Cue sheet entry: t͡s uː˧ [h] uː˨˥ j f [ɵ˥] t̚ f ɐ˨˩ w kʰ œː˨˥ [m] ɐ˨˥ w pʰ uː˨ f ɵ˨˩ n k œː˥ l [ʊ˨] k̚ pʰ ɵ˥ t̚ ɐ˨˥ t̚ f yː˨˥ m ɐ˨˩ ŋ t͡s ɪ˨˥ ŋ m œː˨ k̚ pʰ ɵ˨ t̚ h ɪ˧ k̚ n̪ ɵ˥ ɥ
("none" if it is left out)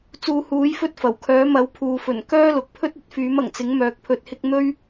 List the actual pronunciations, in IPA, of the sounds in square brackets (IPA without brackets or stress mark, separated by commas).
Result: h, ɵ˥, m, ʊ˨